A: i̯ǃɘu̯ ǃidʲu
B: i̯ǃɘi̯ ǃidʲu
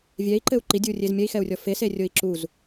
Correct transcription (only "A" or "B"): A